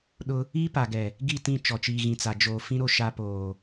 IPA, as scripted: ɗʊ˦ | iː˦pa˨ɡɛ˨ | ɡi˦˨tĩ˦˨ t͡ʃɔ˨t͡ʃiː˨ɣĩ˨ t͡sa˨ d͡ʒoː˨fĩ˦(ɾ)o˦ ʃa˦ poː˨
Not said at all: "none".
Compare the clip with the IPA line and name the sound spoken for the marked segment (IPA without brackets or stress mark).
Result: ɾ